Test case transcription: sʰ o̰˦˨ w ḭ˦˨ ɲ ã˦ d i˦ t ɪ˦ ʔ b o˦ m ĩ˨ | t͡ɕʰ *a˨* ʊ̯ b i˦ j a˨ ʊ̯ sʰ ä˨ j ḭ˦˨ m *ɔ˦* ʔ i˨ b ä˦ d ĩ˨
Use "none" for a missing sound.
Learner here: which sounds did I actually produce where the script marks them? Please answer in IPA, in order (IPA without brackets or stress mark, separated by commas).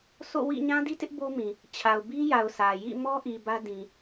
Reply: a˨, ɔ˦